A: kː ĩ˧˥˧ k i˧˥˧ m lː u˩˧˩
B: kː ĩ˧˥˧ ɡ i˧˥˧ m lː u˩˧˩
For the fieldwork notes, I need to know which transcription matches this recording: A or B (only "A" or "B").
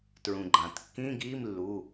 B